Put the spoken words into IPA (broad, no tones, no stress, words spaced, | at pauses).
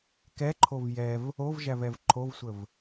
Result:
kɛǃʰov jɛv | ovʒævɛv ǃʰovsʷəv